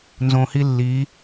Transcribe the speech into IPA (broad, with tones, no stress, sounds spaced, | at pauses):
n z õ˧ h i˥ lː i˧˥